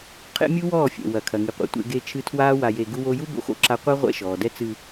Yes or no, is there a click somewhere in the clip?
yes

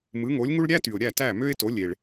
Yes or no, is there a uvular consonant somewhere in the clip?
no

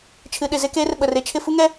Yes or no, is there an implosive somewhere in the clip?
yes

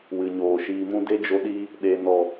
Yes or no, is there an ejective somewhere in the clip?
no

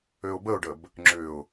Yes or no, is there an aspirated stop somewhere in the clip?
no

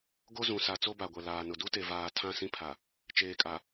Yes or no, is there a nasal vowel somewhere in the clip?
yes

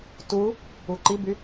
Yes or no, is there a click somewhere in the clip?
yes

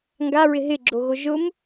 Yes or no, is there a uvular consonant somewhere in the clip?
no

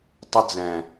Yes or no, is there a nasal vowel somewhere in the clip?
yes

